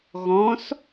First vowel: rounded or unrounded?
rounded